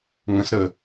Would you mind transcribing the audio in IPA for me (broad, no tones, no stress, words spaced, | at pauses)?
ŋə̃s ɾə